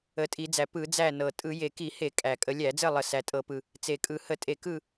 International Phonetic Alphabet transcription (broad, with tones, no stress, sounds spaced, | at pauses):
ə˨˩ tʼ i˧˩˧ d͡z æ˨˩ p ɯ˧˩˧ d͡z æ˥˨ n ɤ˨˩ tʼ ɯ˧˩˧ j e˨˩ k i˧˩˧ h e˧˩˧ kʼ æ˨˩ kʼ ə˧˩˧ lʲ æ˧˩˧ d͡z ɘ˥˨ lˠ ə˨˩ s æ˨˩ tʼ ɤ˧˩˧ p ɯ˨˩ | t͡s e˨˩ kʼ ɯ˧˩˧ h ə˧˩˧ tʼ e˧˩˧ k ɯ˥˨